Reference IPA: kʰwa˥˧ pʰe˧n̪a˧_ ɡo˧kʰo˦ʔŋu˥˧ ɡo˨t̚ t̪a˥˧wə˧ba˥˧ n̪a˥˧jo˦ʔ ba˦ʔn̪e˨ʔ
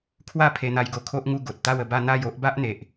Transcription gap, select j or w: j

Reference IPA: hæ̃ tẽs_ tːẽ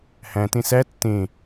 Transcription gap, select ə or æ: æ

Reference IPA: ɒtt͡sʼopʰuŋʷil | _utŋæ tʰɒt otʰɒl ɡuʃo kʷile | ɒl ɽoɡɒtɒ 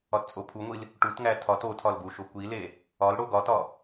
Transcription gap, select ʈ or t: ʈ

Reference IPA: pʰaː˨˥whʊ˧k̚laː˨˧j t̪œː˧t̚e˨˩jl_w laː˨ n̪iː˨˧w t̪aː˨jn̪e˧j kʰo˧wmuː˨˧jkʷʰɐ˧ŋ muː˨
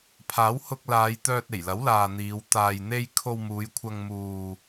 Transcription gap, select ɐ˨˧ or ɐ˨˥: ɐ˨˥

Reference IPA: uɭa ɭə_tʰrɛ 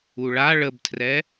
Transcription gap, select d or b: b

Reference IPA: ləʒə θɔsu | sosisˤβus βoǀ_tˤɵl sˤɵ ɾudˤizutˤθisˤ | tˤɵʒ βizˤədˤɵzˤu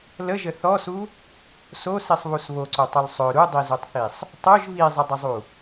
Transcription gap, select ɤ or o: o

